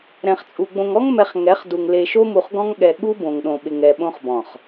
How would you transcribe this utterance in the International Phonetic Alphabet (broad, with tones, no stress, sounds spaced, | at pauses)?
ɾ ɛ̃˨ χ t͡sʼ u˨ ɡ͡b õ˨ ŋ ɔ˦ ŋ m ɛ˨ χ ŋ ɛ˨˦ χ d u˨ ŋ l e˨ ʃ o˦ m u˨ χ ɡ ɔ̃˦ ŋ ɠ ɛ˨ ɠ u˦ b õ˨ ŋ ɗ õ˨ ɓ ɪ˨ ŋ ɛ˨ ɓ õ˦ χ b ɔ̃˨ χ